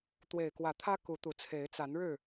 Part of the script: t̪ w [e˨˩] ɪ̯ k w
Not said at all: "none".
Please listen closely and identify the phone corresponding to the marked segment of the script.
e˨˩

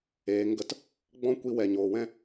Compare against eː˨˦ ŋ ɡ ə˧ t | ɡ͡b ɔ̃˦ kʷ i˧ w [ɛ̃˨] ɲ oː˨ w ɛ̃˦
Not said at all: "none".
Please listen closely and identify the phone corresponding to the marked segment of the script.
ɛ˨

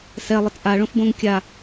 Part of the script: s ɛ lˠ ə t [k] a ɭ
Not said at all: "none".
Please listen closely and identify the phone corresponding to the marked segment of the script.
ʔ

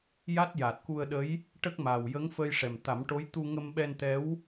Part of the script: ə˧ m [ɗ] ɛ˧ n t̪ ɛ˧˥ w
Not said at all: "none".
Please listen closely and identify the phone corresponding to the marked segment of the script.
ɓ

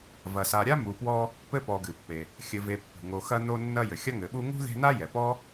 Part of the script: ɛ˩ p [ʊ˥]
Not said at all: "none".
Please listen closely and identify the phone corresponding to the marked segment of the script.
ɔ˥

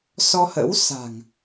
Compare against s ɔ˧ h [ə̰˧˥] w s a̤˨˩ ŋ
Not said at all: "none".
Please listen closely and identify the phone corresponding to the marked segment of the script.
ə̰˧˥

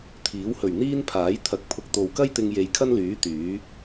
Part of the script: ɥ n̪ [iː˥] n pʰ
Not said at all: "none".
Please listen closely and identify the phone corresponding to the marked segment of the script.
iː˥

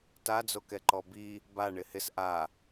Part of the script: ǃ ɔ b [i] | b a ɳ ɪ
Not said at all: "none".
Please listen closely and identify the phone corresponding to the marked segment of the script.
i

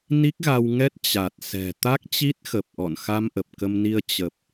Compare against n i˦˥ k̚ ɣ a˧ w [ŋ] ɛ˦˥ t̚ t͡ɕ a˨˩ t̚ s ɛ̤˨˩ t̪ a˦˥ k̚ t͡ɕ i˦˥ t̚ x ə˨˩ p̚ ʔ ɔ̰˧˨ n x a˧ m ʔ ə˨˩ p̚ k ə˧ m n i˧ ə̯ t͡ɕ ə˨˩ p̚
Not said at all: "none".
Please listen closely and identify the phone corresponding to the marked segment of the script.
ŋ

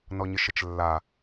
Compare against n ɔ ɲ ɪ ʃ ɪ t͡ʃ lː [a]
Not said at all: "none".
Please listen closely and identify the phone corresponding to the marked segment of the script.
a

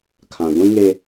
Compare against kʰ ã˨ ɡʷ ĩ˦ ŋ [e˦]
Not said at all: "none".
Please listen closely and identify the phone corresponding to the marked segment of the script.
e˦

